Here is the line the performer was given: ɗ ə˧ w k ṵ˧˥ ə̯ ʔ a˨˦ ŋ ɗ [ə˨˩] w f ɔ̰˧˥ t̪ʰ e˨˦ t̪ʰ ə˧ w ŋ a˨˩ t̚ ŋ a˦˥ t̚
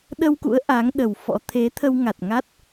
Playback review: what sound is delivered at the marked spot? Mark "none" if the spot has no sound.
ə˨˩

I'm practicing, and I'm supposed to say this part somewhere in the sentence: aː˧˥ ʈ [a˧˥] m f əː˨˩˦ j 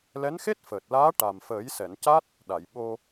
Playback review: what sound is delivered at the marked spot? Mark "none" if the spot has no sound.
a˨˩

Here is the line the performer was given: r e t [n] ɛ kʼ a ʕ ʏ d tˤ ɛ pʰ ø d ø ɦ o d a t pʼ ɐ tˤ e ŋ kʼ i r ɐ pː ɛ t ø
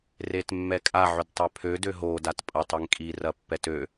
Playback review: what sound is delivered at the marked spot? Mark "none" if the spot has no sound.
mː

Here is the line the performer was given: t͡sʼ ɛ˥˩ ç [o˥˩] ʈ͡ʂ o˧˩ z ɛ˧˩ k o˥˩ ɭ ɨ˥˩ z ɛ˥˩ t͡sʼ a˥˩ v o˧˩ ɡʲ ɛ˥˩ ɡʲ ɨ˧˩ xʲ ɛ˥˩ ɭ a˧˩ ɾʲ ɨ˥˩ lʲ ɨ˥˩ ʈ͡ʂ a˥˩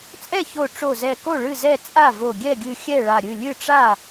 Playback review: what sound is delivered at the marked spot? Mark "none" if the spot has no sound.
o˧˩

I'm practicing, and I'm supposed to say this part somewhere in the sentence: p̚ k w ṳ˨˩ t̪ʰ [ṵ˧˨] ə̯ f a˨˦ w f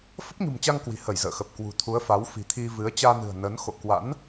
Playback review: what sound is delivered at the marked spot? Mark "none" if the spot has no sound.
u˨˦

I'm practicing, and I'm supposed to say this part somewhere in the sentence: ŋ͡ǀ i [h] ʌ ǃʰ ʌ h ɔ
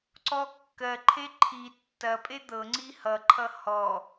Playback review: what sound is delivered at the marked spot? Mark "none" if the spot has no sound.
h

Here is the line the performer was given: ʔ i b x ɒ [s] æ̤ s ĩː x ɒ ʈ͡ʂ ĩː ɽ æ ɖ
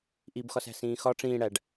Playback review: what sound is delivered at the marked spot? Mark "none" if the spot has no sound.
s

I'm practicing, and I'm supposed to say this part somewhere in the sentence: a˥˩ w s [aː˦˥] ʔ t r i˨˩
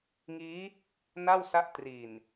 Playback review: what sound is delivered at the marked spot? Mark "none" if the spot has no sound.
a˦˥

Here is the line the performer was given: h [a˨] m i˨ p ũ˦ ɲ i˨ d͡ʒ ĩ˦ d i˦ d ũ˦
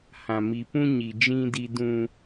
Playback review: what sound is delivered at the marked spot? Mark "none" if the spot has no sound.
ã˨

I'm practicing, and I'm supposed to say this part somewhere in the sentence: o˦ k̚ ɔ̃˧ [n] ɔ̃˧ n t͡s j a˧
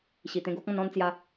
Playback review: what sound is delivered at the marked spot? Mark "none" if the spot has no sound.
n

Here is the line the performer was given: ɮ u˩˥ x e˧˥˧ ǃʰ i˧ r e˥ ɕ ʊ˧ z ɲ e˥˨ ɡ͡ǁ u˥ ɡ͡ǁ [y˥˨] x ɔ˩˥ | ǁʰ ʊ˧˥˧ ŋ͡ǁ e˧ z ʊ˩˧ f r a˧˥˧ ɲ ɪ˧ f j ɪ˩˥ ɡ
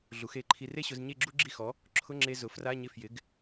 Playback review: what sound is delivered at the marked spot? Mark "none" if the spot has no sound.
i˥˨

